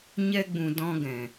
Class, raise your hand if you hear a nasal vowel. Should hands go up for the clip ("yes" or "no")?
yes